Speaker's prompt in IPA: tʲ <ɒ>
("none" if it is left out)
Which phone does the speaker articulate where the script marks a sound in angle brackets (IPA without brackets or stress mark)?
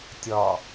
ɒ